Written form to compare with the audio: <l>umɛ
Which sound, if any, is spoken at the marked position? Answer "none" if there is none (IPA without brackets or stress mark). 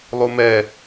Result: lˠ